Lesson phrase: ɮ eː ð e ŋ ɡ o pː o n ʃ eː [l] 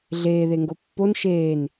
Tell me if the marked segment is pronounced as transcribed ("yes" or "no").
no